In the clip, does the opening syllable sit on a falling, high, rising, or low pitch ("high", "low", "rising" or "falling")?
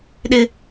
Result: high